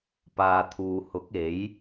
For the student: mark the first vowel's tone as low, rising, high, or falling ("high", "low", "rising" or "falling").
low